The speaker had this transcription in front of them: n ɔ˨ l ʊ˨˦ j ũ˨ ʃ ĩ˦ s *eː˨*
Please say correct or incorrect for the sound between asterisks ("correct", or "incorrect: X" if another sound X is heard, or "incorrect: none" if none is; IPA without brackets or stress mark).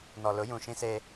incorrect: eː˦